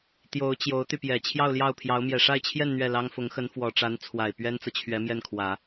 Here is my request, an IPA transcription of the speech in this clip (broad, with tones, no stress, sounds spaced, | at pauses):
t̪ j o˧˥ ʊ̯ t͡ɕ j o˧˥ ʊ̯ t̪ y˧ p j ɛ˨˩ t͡ɕʰ j ɑ˥˧ ʊ̯ l j ɑ˥˩ ʊ̯ pʰ j ɑ˧˥ ʊ̯ m j ɛ˨˩ ʂ a˥˧ ɪ̯ t͡ɕʰ j ɛ˥˧ n n̪ ɥ ɛ˥˩ l ɑ˥ ŋ f ʊ˧˥ ŋ x ə˧˥ n f w ɔ˨˩ ʈ͡ʂ a˧˥ n t͡sʰ w a˨˩ ɪ̯ p ɥ ɛ˥ n t͡s ɤ˨ t͡ɕʰ ɥ ɛ˧˥ m j ɛ˥˩ n kʰ w ä˨˩˦